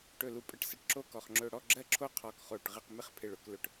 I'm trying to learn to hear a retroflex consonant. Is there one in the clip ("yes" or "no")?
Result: yes